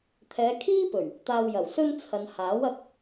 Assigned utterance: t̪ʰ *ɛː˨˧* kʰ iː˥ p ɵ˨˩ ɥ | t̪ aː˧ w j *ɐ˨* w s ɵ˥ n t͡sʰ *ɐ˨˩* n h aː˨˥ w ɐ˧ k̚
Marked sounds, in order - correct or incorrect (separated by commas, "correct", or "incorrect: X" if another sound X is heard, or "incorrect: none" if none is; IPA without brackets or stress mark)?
correct, incorrect: ɐ˨˩, incorrect: ɐ˨